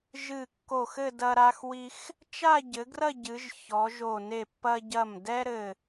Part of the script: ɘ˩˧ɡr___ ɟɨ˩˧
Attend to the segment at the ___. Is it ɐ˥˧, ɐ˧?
ɐ˥˧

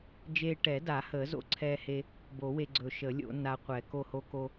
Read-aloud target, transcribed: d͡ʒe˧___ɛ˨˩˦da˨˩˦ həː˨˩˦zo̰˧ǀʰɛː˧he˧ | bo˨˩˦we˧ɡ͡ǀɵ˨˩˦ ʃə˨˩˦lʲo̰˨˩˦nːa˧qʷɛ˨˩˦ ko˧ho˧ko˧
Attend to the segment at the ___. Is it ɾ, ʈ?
ʈ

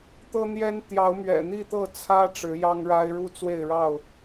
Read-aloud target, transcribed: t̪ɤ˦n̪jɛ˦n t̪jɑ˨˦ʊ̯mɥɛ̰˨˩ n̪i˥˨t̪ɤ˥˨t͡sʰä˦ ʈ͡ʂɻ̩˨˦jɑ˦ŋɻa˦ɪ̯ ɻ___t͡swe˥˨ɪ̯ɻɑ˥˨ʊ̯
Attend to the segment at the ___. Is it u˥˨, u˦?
u˦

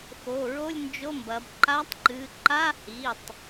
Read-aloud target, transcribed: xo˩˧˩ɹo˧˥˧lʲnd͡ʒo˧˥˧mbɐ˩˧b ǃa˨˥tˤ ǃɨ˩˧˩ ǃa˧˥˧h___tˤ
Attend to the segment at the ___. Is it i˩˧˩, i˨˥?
i˩˧˩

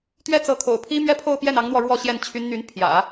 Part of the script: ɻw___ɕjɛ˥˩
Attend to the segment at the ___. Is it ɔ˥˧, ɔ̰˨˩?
ɔ˥˧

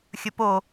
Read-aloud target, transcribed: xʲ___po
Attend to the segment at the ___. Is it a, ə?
ə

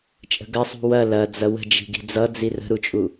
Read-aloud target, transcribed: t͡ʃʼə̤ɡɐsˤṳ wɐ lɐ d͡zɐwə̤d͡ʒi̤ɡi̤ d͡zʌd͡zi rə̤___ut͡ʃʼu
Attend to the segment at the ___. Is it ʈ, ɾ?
ɾ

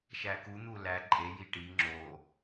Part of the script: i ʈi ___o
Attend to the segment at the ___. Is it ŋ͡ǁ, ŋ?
ŋ͡ǁ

